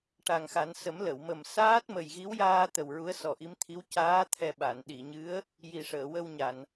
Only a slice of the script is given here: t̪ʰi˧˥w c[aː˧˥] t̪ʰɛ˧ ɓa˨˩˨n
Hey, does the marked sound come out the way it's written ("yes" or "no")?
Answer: yes